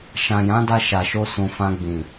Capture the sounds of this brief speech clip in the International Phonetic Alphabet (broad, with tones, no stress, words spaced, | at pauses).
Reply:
ʃã˨jã˨˦da˧ ʃa˨ʃo˧ sũ˨fã˧ɡ͡bĩ˨